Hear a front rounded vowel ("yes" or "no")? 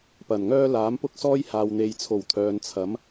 yes